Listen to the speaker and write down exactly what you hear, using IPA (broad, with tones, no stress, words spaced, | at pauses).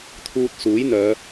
t̪ʰuː˧t̚suː˨˥jn̪œː˨˧